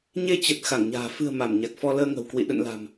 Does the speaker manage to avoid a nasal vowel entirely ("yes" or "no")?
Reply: yes